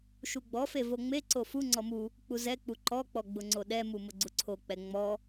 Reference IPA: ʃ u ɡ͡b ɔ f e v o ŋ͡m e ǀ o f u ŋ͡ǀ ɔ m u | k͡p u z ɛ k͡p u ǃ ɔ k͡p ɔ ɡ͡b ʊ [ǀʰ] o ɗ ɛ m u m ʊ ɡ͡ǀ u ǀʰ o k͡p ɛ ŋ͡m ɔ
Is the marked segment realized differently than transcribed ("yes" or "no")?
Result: yes